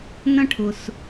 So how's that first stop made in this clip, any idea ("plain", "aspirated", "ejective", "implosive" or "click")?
aspirated